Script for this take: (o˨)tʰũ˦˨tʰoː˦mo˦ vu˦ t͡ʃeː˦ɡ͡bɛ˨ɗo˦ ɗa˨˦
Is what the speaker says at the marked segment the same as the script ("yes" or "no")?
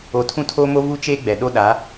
yes